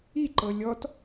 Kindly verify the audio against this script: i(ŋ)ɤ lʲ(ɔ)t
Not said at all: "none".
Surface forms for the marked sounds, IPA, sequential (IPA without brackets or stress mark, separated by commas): ǃ, ɔ